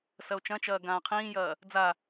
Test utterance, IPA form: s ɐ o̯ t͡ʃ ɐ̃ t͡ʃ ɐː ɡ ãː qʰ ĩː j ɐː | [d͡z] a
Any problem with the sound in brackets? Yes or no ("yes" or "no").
no